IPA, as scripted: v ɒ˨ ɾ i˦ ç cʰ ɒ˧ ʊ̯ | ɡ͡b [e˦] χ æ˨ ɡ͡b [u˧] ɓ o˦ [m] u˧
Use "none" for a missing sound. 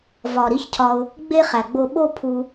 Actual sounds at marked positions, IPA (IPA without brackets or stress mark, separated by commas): e˦, o˧, pʰ